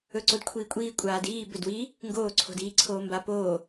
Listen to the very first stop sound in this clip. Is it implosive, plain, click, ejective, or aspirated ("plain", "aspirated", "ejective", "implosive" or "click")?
click